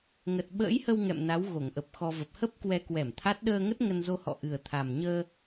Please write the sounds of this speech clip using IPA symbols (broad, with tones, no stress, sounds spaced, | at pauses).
ŋ ə˨˩ t̚ ɓ ə̰ː˧˥ j h ə˧ w ŋ ɛ̰˧˨ m n a˨˦ w ɣ o˧˩ ŋ ʔ ə˨˩ p̚ x ɔ˧ v ə˨˩ p̚ h ə˦˥ p̚ k w ɛ˧ k w ɛ˧˩ m t̪ʰ a˦˥ t̚ ɗ əː˧ ŋ ə˦˥ t̚ ŋ ə˧ n z o˧ h ɔ̰˧˨ ʔ ɨ˨˩ ə̯ t̪ʰ a˨˩ m ɲ əː˧